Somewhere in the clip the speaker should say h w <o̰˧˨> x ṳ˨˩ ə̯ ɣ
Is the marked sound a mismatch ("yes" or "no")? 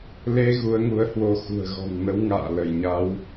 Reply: yes